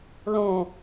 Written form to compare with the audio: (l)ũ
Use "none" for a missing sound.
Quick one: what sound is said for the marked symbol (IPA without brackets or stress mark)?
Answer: l